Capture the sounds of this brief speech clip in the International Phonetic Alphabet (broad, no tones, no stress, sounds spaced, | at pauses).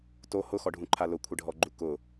t o h ʊ x ɔ ɖʱ ũ ǃʰ a l ʊ kʷʰ ɪ ɖʱ ɔ ɡ͡ǃ u k ʊ